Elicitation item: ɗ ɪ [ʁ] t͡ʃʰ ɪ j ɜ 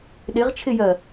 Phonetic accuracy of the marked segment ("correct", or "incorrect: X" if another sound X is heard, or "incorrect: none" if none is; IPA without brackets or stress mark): correct